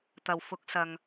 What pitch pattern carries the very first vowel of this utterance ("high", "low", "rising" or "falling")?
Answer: low